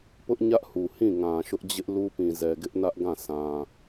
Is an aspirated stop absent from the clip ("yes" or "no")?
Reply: yes